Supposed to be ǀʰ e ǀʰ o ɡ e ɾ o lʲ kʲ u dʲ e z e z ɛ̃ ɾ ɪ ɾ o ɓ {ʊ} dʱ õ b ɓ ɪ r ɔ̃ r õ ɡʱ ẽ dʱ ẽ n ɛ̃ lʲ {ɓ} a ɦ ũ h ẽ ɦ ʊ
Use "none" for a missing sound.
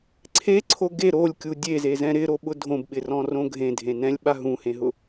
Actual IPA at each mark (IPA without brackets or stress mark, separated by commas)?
ʊ, ɓ